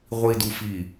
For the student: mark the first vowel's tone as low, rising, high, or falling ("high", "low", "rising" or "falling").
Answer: low